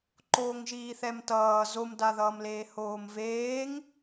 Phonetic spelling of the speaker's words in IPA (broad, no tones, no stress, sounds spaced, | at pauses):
ǃ oː ŋ ʒ iː θ ɛ m t ʌː z o m d a ð ʌː m l eː h oː m v eː ŋ